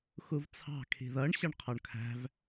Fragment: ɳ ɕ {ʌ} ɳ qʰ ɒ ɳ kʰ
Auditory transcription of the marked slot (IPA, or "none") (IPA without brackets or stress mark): ʌ